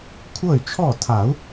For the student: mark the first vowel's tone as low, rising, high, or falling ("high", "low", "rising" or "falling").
falling